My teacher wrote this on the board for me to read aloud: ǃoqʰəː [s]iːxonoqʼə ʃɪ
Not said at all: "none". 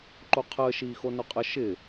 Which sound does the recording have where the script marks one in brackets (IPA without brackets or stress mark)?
ʃ